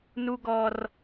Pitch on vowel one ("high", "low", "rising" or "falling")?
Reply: high